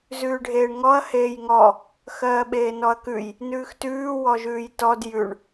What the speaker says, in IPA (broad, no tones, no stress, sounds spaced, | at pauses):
z ʉː ɖʱ eː ɳ ŋ ɔ ɐ̯ h eː j ŋ ɔ | x ɜː ɓ eː n ɔ ɐ̯ k ʉ j | n ʉː x t ʉː w ɔ ʒ ʉː j t ɔ d j ʉ ɳ